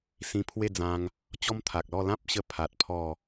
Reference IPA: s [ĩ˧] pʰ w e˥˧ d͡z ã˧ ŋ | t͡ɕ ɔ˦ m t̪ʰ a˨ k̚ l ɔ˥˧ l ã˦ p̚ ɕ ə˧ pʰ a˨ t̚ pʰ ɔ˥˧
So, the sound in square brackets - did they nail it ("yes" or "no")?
yes